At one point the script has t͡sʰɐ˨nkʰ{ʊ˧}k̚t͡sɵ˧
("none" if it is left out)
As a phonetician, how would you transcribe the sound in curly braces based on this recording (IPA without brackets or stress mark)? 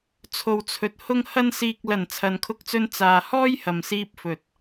ʊ˧